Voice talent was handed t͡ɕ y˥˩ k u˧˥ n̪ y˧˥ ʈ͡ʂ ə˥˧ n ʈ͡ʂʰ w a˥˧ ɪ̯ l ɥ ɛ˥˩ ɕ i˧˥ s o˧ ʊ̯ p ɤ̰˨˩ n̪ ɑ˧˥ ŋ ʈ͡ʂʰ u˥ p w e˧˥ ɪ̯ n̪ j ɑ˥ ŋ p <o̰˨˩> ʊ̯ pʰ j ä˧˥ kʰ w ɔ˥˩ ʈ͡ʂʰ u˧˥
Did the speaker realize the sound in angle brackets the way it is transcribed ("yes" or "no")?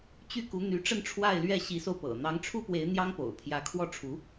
yes